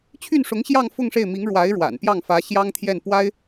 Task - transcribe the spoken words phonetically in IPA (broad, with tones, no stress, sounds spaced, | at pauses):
t͡ɕʰ y˥˩ n ʂ ʊ˧˥ ŋ ɕ j ɑ˥˧ ŋ f ʊ˥˧ ŋ ʂ e˥˩ ɪ̯ m i˧˥ ŋ ɻ w a˧˥ ɪ̯ ɻ w a̰˨˩ n p j ɑ˥˩ ŋ f ä˧˥ ɕ j ɑ˥ ŋ t̪ʰ j ɛ˥˩ n p w a˥ ɪ̯